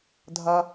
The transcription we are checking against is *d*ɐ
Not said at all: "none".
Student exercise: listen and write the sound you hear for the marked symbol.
dʱ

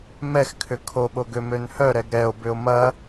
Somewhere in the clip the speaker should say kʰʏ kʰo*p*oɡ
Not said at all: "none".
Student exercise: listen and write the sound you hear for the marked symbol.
ɓ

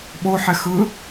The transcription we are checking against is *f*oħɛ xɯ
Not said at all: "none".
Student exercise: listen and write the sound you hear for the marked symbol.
ɓ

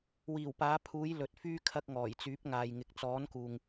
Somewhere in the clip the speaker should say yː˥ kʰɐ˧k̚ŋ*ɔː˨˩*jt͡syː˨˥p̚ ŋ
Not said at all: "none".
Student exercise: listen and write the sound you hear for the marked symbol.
ɔː˨˩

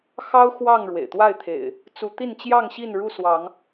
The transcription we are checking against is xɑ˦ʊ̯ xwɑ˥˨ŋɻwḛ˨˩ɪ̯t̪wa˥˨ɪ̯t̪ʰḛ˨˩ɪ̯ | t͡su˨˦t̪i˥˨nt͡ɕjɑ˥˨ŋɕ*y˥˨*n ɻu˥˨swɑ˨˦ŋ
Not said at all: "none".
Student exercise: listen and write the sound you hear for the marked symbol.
i˥˨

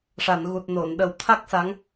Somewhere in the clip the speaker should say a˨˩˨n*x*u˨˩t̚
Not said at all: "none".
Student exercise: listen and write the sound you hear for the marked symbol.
ɣ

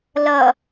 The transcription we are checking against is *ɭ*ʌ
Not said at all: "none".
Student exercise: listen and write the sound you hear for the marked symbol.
l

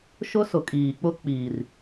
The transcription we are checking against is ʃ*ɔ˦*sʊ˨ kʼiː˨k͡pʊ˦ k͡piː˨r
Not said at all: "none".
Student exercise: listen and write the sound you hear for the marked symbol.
ʊ˦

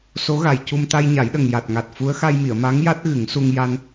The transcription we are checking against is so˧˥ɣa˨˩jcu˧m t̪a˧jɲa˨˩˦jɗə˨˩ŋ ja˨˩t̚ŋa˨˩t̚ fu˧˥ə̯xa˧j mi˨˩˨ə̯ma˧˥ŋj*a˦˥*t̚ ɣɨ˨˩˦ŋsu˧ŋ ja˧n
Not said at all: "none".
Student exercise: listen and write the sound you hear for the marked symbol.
a˦˥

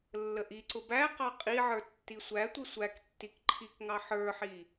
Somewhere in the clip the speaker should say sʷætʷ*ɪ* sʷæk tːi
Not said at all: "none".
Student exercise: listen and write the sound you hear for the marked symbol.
ɪ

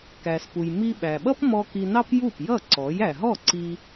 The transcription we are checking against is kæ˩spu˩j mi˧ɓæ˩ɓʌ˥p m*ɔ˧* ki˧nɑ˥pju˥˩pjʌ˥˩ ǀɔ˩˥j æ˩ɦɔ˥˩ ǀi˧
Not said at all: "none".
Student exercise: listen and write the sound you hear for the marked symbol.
ɔ˧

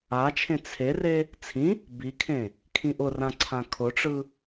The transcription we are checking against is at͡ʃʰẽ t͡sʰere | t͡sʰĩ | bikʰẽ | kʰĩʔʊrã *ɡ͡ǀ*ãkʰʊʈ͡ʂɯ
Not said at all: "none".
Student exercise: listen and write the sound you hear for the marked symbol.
ǀʰ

